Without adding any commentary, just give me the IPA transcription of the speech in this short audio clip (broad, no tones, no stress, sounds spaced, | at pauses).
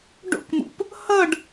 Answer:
ɖ o̰ k m ṵ p | h ʌ ɖ